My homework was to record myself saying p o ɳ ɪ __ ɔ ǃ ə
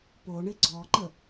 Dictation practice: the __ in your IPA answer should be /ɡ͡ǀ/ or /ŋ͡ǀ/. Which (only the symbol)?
ɡ͡ǀ